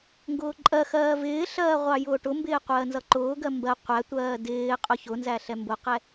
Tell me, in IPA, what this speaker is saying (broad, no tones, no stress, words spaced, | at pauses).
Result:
ŋɡʊːǃʼɜxɜː vɪːɬɜː ʁʷɑjʊːʈʊmbɪː qʷɜːnzʌǃʊːɡɜ mbɜ qʷætʷɜː dɪː qʼʊçʊnzæ ɬɛmbʊqɛ